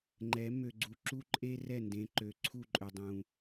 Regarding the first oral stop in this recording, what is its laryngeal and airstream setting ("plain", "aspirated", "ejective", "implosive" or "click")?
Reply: click